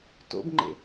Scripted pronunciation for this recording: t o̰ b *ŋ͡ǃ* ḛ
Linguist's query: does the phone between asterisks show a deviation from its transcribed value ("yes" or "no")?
no